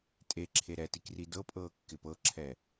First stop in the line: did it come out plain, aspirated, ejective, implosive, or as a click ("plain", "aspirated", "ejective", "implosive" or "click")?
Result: ejective